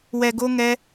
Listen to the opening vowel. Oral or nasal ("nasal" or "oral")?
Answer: oral